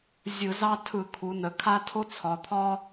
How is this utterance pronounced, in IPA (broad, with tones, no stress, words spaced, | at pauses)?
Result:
zʲɯ˧˩˧zɑ˦ tʰɯ˧˩˧kʰu˩˧nə˩˧kʰa˦ tʰo˦t͡sʰɒ˩˧ t̪ʰɒ˦